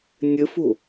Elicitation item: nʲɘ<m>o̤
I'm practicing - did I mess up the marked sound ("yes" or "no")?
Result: yes